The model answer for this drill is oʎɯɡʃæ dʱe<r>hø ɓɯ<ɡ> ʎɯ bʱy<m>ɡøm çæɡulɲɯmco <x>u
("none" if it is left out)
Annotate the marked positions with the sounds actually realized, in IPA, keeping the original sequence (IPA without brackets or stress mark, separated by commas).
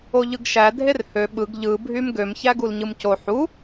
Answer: r, ɡ, m, ħ